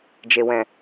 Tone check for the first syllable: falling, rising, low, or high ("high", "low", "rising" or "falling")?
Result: low